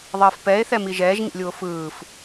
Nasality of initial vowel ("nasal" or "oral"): oral